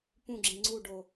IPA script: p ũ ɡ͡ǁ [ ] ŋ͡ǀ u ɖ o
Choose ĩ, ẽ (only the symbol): ĩ